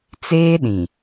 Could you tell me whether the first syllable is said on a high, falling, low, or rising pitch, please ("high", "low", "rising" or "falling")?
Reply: high